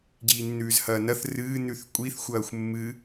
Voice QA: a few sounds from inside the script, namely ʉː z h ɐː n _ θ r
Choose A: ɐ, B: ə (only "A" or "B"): A